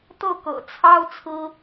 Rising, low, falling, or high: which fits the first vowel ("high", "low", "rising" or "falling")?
falling